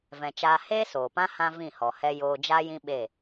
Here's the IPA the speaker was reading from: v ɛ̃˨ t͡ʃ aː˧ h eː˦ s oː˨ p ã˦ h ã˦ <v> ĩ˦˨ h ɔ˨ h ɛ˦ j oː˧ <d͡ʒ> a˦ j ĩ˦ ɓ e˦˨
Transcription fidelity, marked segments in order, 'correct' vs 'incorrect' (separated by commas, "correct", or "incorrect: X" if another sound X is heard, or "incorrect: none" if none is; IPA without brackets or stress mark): correct, correct